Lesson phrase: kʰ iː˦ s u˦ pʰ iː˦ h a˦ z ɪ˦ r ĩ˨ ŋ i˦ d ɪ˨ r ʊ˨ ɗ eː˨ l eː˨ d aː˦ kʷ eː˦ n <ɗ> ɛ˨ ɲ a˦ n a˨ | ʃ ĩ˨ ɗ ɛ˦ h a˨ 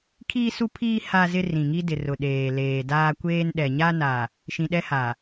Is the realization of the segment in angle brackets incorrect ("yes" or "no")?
no